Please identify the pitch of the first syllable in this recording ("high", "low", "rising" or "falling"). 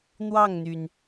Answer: falling